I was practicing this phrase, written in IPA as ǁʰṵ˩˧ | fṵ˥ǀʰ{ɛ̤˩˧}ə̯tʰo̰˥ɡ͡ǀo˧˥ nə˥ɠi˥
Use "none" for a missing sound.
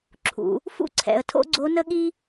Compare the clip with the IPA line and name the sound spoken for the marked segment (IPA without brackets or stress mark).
ɛ̰˩˧